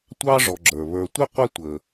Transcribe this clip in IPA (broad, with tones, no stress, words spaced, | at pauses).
tʷɑ˥ʐɔ˨ɡ͡ǁə˞˩ βə˞˨tʷɪ˦ qʷɛ˦tʷə˩